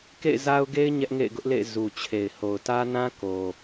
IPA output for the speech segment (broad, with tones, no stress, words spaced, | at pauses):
kḛ˦˨ɪ̯za˦ʊ̯ɡe˦ɪ̯ ɲɛ˦ʔŋḛ˦˨ɪ̯ ɡʊ˦ʔlḛ˦˨ɪ̯ zu˨t͡ɕʰe˨ɪ̯ ho˨ʊ̯tä˦nã˦ ko˨